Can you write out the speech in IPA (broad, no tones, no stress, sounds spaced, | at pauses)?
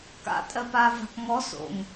k a̰ tʼ ɜ p aː v a̤ k ŋ ɔ s o̰ ŋ